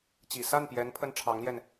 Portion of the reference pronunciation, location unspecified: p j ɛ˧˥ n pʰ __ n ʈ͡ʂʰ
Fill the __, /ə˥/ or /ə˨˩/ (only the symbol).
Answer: ə˥